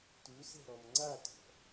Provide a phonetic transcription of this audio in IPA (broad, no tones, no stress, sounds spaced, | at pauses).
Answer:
t u s ɛ̤ ɾ ɔ m ŋ͡ǀ a t ɔ̤